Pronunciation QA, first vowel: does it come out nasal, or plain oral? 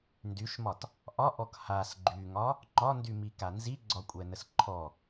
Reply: oral